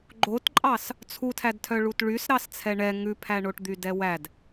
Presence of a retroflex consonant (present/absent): present